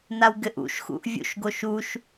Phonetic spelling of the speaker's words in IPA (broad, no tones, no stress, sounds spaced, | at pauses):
n a w ɡ ɘ ʔ ṵ ʃ x ṵ ʔ vʲ ṵ ʃ ɡ o ʃ u ʃ